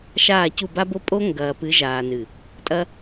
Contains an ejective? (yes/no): yes